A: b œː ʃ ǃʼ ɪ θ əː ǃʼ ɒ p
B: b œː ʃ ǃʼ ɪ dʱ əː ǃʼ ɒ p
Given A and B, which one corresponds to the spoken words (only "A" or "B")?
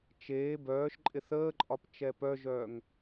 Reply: A